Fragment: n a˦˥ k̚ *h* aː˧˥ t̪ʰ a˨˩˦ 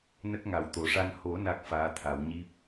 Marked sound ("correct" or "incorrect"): incorrect